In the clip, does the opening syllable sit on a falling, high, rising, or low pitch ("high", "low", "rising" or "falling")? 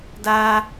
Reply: high